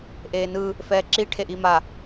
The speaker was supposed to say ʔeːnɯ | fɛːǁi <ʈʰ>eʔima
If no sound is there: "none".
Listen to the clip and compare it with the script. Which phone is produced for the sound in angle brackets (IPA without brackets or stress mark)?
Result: ʈʰ